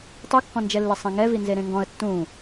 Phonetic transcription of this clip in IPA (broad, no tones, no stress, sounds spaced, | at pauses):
tˤ u kː ɔ̃ n d͡ʒ ɛ lː ɪ sˤ ĩ ŋ ɛ v i n z e ɾ ẽ ŋ ɡ ɔ̃ ə̯ tː ũ